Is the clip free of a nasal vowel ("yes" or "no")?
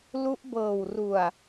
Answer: yes